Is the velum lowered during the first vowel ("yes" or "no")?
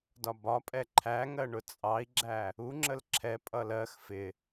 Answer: no